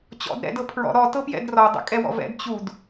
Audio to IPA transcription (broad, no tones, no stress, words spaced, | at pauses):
t͡ɕɔ̰d ɾɛ̰d ɤpʰɹɔ̰ ɾɔ tɤpjɛ̰drɔ dˤɛ̰kʼɛwɔ̰vɛ̰d t͡ɕud